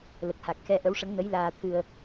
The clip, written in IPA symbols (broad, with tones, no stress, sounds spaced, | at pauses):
l ə˨˩ k̚ h a˨˩ k̚ x ɛ˧ ʔ ə˧˥ w ʂ ə˧˥ ŋ n ə˧˥ j l aː˧ t̪ʰ ɨ˧ ə̯